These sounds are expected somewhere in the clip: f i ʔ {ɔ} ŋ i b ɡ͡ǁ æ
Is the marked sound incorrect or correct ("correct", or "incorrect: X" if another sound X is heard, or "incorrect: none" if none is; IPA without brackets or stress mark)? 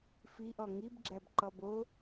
correct